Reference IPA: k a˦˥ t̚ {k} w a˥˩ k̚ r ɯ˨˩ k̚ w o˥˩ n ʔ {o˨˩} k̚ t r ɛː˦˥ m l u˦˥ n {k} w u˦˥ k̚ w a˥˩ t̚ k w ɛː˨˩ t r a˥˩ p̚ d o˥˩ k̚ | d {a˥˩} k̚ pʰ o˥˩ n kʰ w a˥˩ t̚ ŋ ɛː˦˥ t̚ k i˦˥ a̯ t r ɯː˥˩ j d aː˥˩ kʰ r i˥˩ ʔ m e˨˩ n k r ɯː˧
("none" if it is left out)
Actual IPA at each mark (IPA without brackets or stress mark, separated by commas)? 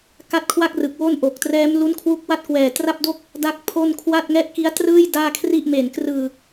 kʰ, o˨˩, kʰ, a˥˩